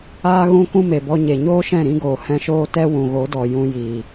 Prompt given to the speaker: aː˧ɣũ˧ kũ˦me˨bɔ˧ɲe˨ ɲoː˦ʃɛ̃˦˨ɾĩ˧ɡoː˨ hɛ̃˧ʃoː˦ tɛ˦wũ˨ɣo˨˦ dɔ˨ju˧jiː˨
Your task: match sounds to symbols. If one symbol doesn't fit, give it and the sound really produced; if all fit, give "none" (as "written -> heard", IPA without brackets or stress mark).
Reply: u˧ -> ũ˧